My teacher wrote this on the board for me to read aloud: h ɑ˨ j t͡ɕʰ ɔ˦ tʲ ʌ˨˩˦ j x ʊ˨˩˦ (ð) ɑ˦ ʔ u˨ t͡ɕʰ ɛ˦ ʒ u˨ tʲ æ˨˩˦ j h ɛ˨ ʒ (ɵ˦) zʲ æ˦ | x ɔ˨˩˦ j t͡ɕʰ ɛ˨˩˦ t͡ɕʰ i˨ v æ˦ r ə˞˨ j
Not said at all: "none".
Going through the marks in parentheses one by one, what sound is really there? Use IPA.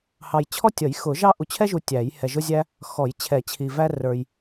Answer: ʒ, ʊ˦

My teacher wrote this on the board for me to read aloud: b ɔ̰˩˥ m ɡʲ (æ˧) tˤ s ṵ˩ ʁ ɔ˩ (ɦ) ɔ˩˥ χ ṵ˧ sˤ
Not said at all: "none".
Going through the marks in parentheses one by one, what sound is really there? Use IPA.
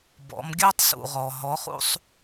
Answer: æ˥, ɦ

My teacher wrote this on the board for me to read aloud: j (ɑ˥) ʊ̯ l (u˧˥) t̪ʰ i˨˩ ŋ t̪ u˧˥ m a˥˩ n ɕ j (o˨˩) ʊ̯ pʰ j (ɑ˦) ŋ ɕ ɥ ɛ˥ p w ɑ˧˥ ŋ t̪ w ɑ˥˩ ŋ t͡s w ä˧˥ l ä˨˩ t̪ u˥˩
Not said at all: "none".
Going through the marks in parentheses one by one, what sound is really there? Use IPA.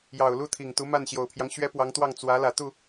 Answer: ɑ˨˩, u˥˩, o˨˩, ɑ˦

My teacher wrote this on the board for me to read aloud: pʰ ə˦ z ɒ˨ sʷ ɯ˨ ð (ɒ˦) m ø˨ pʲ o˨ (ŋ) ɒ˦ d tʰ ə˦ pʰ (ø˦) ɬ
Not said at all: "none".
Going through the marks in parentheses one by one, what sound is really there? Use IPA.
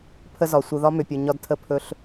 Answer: ɒ˦, ɲ, ɵ˦

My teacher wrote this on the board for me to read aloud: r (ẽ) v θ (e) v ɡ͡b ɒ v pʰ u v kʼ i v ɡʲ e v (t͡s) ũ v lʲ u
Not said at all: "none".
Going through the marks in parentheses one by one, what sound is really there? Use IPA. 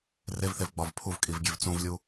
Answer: e, e, t͡s

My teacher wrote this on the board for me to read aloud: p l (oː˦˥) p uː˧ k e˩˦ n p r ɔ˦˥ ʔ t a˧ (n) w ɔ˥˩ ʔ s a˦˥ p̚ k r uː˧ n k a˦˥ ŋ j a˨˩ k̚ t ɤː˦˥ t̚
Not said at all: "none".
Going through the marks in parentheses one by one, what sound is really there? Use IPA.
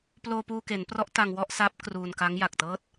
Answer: oː˧, ŋ

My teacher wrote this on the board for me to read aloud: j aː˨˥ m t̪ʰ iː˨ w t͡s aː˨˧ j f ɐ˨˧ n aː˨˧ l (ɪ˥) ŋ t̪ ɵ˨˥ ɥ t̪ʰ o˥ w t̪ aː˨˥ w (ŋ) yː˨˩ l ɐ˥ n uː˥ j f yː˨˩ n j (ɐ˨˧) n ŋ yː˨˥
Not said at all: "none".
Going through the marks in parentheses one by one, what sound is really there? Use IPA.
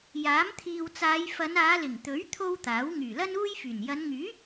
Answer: ɪ˨˩, ŋ, ɐ˨˧

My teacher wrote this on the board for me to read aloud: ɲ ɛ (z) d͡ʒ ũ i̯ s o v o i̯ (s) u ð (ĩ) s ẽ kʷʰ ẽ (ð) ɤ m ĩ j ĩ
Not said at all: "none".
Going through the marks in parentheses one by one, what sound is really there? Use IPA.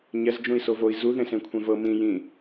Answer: z, z, ẽ, v

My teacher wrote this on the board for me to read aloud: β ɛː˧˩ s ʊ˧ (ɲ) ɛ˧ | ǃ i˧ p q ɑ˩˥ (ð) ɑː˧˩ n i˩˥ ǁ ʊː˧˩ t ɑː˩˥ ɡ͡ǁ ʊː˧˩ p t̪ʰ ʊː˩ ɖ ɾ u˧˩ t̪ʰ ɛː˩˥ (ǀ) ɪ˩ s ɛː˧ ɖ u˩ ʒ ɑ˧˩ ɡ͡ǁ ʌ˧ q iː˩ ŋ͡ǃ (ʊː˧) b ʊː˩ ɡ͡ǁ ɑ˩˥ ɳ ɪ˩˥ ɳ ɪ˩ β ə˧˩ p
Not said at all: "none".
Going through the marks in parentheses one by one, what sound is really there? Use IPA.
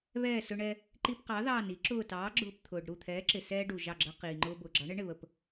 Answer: ɳ, ð, ǁ, ʊː˧

